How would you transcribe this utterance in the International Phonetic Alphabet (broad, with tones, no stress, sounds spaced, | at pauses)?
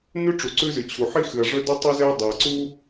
n ʉ˥ ʈ͡ʂ u˩ ǀ ʉ˥ z ɨ˩ t͡ɕʰ u˩ ħ i˥ x ɨ˩ ɐ̯ ʐ ɵ˥ d ɨ˥ tˤ ɨ˥ z e˥ ɐ̯ dˤ e˩ ɐ̯ ǀ u˥